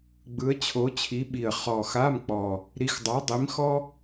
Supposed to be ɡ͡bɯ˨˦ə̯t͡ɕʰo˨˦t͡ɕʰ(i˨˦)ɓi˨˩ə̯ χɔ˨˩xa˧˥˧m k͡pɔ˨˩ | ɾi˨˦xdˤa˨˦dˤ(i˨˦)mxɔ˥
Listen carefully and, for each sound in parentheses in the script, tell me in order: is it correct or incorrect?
correct, correct

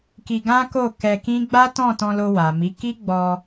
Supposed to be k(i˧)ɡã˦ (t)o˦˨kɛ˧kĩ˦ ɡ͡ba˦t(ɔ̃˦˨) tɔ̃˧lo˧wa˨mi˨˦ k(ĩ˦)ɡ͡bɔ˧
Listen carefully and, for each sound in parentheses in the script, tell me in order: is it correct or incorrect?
correct, incorrect, correct, incorrect

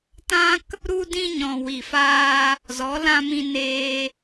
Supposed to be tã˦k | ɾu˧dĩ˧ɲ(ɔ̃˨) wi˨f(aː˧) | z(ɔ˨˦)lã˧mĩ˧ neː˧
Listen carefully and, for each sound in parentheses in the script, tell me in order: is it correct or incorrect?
correct, correct, correct

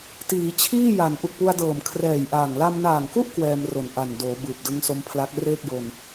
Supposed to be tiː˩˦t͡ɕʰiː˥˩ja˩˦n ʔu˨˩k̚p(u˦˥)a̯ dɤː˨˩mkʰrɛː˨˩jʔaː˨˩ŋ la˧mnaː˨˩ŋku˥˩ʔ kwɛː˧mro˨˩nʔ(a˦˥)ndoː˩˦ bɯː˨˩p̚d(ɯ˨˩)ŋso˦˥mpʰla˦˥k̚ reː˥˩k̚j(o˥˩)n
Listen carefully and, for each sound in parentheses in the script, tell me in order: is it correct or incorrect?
incorrect, incorrect, incorrect, incorrect

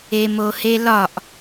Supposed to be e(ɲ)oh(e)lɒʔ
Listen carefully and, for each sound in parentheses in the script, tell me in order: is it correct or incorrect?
incorrect, correct

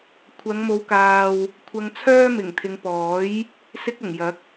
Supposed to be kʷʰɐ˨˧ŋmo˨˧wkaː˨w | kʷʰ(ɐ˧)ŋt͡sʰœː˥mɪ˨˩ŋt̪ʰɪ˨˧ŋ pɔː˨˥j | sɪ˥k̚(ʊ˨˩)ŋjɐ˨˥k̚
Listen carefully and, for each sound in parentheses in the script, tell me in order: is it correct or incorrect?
correct, correct

